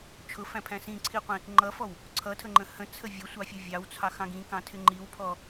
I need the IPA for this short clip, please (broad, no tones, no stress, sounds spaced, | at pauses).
t͡ʃʰ ʊ f æ̃ pʰ æ̃ s ĩ ǀʰ i qʷ ĩ | ŋ͡ǃ ʌ f ɔ w | ǀʰ ʌ tʰ ə ŋ͡ǃ ə̃ h ə̃ t͡sʰ ə vʲ ʌ sʷ ɑ fʲ ʌ vʲ ɑ w t͡sʰ ɑ x ɑ̃ ɡ ĩ k ɑ̃ tʰ ɪ ŋ͡ǃ i w pʰ ɔ